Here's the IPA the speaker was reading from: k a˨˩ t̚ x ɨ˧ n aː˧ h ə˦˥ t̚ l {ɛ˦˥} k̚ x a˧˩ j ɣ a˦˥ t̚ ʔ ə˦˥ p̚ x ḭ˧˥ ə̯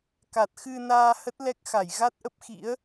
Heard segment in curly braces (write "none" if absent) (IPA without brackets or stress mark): ɛ˦˥